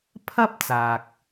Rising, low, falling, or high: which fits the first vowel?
high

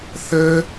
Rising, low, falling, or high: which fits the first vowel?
high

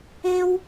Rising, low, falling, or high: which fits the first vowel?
high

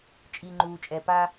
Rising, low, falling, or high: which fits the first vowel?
low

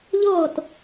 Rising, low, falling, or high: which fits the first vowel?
falling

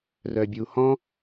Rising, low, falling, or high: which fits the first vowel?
low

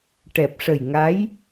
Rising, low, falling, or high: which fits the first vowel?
low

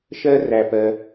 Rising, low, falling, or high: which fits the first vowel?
high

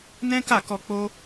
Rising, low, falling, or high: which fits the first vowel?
high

